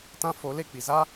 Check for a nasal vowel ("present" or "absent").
present